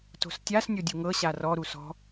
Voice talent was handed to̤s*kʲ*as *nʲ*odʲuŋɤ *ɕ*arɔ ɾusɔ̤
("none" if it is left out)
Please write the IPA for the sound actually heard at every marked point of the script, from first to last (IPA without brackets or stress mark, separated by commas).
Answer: tʲ, nʲ, ɕ